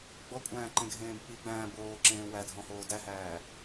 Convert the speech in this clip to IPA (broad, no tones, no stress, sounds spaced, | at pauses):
ɡ͡b ɔ kʷʼ æ̃ː ǃ ẽ ɡʱ ẽː b k͡p i ɡ͡b æ̃ː b oː ǁ ẽː w æ dʱ ɔ̃ h oː d æ h æː